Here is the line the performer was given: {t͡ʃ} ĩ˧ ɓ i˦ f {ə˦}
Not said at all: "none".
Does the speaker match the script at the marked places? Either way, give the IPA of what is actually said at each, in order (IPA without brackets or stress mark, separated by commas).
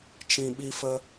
t͡ʃ, ə˦